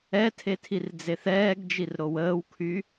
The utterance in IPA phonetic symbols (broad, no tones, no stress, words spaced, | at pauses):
ɛtʰe tʰird͡zeθɛːɡd͡ʒir ɾowəːwkʰy